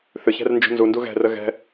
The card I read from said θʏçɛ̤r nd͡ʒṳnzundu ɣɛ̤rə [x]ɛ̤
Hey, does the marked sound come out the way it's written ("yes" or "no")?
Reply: no